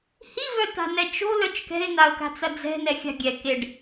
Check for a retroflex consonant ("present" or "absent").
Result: present